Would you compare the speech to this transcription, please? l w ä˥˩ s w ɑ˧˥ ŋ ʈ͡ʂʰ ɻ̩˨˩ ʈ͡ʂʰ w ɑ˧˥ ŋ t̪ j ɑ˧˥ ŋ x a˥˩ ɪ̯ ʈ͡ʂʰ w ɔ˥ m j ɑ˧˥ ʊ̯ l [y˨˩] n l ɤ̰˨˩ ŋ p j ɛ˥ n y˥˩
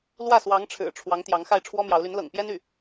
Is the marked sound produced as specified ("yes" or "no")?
no